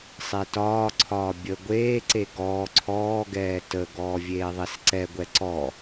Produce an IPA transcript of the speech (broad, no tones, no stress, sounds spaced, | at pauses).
sˤ e t ɒː ǀʰ ɒː bʲ ə ɡʷ eː ǀ e ɡ ɔː ǀʰ ɔː ɡ ɛː t ə ɡ ɔː vʲ eː ðˤ e s ǀ ɛ ɡʷ ɛ ǀ ɔ